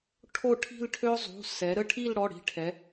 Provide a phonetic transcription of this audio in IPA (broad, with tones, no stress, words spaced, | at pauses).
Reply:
ʈʰo˥˧ʈʰi̤˥˧lʈʰø˥ zˤṳ˩˧˩ sɛ˩˧ ɾə˥˧ʈʰi˥˧lɽɔ˩˧˩ɽi̤˧˩ ʈʰɛ˩˧